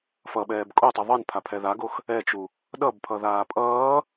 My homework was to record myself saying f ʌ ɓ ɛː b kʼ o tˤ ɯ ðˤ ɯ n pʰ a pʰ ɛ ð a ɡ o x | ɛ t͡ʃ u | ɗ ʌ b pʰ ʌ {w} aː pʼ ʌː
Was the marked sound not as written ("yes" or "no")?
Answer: yes